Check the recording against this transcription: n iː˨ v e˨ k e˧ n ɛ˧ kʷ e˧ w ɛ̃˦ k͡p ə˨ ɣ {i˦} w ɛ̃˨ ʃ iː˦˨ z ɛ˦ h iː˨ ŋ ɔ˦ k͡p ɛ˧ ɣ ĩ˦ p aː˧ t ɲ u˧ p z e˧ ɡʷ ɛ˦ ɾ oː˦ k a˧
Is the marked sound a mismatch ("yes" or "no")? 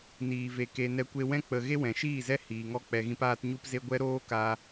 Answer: yes